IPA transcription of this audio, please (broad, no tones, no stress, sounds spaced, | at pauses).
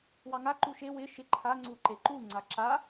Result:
w ɑ ŋ a ǃ u ʃ e w ɪ ʃ ɪ ǃʰ a ŋ͡ǀ u ǃ e ǃ u ŋ͡ǀ a ǁ a